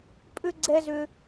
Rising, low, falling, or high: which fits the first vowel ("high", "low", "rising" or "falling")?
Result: high